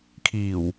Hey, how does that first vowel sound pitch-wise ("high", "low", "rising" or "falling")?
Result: low